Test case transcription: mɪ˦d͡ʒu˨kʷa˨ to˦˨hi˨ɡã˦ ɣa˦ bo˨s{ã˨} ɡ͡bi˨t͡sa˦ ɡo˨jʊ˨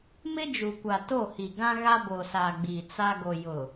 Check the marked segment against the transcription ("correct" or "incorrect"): incorrect